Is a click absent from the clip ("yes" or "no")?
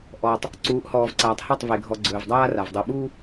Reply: no